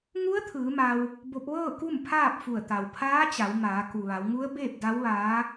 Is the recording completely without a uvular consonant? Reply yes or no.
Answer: yes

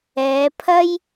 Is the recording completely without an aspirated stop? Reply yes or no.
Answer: no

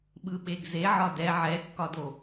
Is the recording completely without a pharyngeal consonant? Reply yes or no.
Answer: no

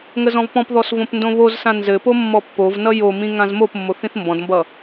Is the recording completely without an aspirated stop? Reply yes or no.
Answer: yes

